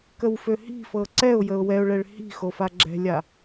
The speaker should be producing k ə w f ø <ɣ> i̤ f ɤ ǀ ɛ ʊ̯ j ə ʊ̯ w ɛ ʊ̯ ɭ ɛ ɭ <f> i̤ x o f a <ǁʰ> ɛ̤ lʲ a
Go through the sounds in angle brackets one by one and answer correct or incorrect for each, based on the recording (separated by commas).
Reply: incorrect, incorrect, incorrect